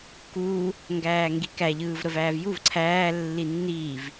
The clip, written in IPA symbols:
k uː | ŋ ɡ æː ŋ ɡ i k æ ʎ ɯː v ɾ ə v æː v j u v ǀʰ æː lː i nː iː v

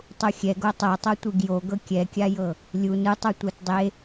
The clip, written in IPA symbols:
tˤ u xʲ ɛ ɡ o tˤ ɤ tˤ o tʷ i ɡ j o ɡ ɤ kʲ ɛ kʲ a j ɤ | lʲ u n ɯ tˤ u tʷ a t dˤ e

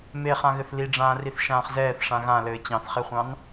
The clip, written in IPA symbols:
m e χ ã ɣ ɘ θ l i ɖ͡ʐ ãː r i θ ʃ ãː χ z ɛː θ ʂ ã ɣ ã l ɘː t͡ɕ ɑ̃ θ χ e χʷ ɑ̃ n

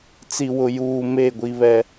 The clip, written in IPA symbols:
t͡s i˨ w ʊ˨ j uː˨ m e˦˨ ɡʷ i˦ β ɛ˦

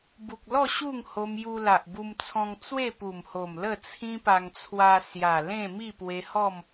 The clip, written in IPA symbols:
b u˨ k̚ l ɔ˥˧ ɕ u˥˧ ŋ h o˧ m j u˧ l a˨ ʔ b u˧ m t͡sʰ ɔ̃˧ ŋ t͡s w e˥˧ p u˨˩ m h o˨˩ m l ə˥˧ t͡sʰ ĩ˦ p a˧ ŋ t͡sʰ w a˧ s j a˨˩ l ẽ˥˧ m i˥˧ p w e˧ h ɔ˥˧ m

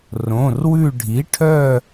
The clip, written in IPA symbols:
r õ˩˧˩ r w ʉ˦˨ ɖʱ i˩˥ ʈʰ œ˦˨

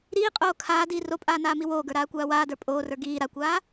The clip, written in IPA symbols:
ɾ iː qʼ oː kʰ aː d iː r o pʼ aː n aː m i w oː ɡ ə˞ ɾ aː kʷ aː w aː d ə˞ pʼ oː r ə˞ ɡ iː ɾ a kʷ aː

